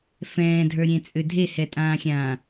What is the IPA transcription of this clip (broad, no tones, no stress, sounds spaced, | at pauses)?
f ɛ̃ː dʱ ə˞ ɾʲ ẽ t͡sʼ ʏ dʱ e h ɛ tʼ ãː xʲ ãː